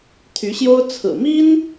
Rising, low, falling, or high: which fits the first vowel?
rising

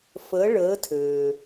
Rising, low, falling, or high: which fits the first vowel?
rising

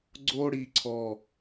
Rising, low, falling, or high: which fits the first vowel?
high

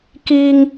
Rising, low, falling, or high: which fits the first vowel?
high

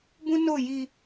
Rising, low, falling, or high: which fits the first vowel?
high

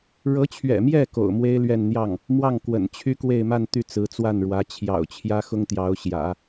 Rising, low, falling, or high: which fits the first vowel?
rising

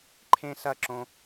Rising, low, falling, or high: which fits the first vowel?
high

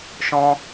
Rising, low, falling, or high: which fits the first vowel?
high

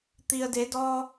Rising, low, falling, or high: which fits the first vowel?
low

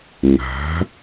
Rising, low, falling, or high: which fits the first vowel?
rising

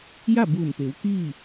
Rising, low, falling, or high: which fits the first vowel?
falling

